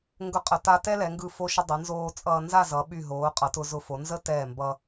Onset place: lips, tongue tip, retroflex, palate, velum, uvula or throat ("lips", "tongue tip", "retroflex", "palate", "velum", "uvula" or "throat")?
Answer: velum